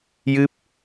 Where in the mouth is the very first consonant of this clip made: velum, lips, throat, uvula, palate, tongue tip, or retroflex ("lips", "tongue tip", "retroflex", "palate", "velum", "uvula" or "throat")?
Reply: palate